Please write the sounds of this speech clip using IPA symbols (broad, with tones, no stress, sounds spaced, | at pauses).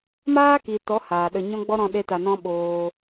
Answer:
m aː˦ k i˨ t ɔ˨˦ h aː˨ ɗ ə˧ ɲ ɔ̃˦ ɡ͡b ɔ˦ ɾ ɔ̃˧ ɗ e˦ t a˧ n ɔ̃˦ ɓ oː˧